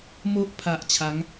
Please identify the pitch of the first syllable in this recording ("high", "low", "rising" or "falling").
high